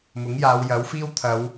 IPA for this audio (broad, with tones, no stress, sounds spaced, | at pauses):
m ʊ˨˥ ŋ j aː˨˧ w j ɐ˨˥ w f iː˥ w t̪ʰ ɐ˨˧ w